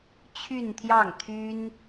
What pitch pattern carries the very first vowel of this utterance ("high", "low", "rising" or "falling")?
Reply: falling